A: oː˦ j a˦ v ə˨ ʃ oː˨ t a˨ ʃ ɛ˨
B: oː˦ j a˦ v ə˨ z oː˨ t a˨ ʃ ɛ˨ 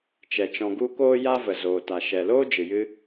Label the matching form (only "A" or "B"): B